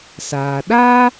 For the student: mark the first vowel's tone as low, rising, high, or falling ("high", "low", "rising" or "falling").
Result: low